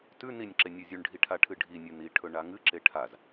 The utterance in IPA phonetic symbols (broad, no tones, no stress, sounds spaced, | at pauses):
t ʉ n i nʲ ǁ e nʲ ʉ zʲ ʉ ɳ ɖʱ i ʈʰ a ʈʰ ɨ ɖʱ i nʲ ʉ n i ʈʰ ɵ ɳ a ŋ ɨ ǁ e ʈʰ a z